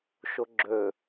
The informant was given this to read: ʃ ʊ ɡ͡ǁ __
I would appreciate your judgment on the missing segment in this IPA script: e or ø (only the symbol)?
ø